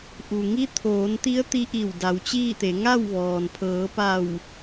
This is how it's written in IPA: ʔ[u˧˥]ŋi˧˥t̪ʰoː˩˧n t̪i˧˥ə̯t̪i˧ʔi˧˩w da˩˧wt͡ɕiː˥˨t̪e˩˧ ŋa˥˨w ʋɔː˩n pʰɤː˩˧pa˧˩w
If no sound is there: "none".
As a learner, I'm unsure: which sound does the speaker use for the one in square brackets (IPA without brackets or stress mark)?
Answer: u˩